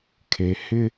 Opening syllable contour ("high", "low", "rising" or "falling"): low